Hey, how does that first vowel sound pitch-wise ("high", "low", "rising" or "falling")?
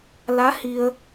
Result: rising